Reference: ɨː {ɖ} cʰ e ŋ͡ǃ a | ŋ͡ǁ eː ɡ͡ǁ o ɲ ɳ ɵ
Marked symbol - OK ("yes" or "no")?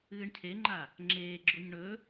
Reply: no